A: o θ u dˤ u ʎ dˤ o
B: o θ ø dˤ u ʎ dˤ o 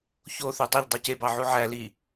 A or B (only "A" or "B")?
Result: B